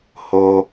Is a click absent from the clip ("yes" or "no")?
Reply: yes